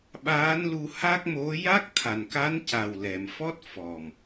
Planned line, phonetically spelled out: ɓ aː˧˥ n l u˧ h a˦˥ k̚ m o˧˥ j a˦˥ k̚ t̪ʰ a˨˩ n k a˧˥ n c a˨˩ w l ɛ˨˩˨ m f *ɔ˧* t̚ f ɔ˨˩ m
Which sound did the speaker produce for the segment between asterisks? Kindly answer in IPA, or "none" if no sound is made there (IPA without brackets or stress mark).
ɔ˦˥